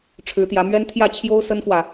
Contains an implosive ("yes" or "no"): no